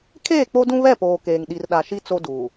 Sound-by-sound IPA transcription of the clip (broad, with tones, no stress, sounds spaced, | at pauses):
kʰ eː˦˨ k͡p o˦ d ũ˦ β ɛ˦˨ p oː˨ k eː˨ ŋ ɗ i˨ r ɗ a˨ ʃ i˦ t͡s o˦ d uː˨